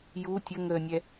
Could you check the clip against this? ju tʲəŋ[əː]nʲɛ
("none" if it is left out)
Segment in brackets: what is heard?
əː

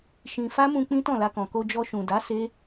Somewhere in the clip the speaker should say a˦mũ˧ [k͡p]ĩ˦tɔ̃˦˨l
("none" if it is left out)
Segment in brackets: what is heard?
k͡p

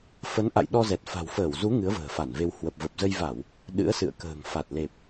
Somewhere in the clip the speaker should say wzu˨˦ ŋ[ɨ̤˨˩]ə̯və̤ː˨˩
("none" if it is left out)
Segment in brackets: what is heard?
ɨ˨˦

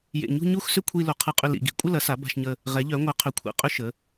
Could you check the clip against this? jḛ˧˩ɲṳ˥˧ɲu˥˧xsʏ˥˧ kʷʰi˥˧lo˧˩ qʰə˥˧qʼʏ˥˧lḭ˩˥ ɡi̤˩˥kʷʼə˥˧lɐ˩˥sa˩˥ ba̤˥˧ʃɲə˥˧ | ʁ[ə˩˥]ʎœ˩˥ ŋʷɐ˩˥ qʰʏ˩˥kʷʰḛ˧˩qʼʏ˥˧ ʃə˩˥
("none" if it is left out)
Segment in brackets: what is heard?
ɛ˩˥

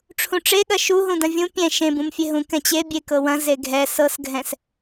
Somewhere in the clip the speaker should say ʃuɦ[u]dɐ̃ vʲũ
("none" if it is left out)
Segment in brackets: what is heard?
ũ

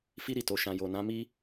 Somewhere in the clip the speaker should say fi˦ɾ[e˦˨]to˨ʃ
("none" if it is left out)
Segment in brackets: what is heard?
i˦˨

